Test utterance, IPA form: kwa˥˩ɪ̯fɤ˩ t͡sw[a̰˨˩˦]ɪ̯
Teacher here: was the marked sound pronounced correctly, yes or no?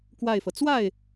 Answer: no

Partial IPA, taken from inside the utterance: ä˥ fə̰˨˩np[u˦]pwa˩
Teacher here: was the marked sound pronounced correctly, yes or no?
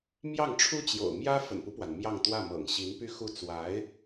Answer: yes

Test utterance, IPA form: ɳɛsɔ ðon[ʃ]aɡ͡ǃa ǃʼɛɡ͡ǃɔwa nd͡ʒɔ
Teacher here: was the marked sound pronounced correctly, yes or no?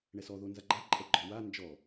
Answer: no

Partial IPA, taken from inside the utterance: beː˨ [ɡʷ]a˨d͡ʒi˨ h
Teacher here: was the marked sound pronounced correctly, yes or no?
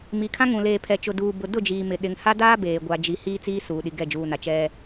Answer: yes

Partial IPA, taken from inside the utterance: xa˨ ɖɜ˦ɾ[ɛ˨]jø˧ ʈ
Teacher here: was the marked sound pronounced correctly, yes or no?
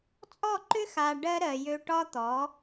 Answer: no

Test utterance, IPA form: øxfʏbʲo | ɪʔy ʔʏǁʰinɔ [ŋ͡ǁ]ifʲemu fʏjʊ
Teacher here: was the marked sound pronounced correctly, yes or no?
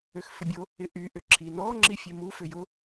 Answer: yes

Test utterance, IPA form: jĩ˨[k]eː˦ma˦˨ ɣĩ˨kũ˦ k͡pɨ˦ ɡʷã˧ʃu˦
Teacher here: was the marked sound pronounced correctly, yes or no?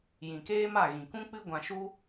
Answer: yes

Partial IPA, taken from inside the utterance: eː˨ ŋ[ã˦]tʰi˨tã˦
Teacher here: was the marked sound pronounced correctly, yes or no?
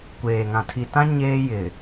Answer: no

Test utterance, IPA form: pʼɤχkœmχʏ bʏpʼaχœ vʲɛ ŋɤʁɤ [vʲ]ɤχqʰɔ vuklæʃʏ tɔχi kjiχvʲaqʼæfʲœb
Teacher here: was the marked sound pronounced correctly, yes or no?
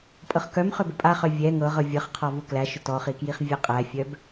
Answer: yes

